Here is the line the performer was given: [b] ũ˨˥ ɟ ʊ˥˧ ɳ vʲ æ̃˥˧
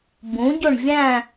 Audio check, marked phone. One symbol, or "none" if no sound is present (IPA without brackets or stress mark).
b